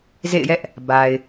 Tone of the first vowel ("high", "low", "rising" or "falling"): falling